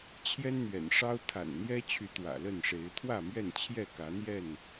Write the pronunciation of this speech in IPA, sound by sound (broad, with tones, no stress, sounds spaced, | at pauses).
t͡ɕʰ j ɛ˦ n n̪ ɥ ɛ̰˨˩ n ʂ ɑ˦ ʊ̯ t̪ʰ a̰˨˩ n n̪ j ɛ˦ t͡ɕʰ y˨˦ t̪ w ä̰˨˩ l ə˥˨ n ʂ e˨˦ ɪ̯ t̪ʰ w ä˥˨ m ɥ ɛ˥˨ n t͡ɕʰ j ɛ˥˨ k ä˨˦ n̪ j ɛ˥˨ n